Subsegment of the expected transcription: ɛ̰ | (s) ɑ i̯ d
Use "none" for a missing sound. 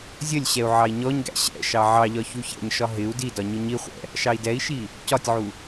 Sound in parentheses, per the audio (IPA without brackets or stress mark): ʃ